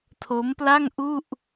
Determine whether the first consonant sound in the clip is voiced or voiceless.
voiceless